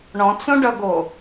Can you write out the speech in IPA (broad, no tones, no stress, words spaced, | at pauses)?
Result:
ɳɔ̃t͡sõɖʌɡo